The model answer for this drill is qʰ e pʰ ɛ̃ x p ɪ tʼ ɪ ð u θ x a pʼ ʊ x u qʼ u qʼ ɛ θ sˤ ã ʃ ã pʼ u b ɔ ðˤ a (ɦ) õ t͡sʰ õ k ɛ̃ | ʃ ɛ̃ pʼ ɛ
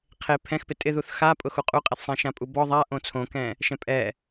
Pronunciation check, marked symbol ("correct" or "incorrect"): incorrect